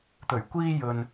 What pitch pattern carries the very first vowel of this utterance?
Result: low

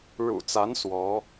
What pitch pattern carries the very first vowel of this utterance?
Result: low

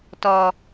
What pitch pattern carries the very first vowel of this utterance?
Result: low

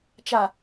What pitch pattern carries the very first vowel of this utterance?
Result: low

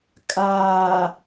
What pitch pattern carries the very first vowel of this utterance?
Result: low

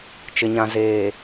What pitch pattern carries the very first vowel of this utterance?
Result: low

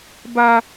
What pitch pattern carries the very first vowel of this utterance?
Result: high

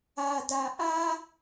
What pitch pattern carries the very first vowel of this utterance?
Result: low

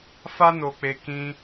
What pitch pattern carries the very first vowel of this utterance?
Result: high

